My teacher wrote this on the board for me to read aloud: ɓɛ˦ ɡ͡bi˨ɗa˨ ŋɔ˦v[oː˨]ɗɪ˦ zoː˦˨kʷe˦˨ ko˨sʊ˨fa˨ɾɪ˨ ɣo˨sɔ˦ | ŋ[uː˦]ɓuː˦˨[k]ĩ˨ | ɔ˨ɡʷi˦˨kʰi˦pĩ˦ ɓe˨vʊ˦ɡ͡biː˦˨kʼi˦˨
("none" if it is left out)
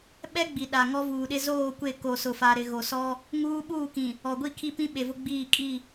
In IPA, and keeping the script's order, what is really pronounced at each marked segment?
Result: uː˨, uː˦, k

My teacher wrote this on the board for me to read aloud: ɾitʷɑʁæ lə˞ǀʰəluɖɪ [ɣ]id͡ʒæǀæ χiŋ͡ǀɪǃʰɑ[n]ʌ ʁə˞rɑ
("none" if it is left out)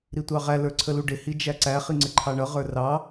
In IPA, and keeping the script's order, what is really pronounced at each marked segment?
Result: h, ɳ

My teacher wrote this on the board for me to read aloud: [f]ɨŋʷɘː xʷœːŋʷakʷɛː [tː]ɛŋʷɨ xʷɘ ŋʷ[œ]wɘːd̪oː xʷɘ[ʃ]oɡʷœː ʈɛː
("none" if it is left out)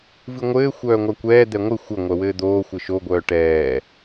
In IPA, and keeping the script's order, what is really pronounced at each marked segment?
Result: v, d̪, œ, ʃ

